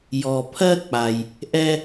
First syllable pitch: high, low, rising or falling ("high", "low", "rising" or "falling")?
low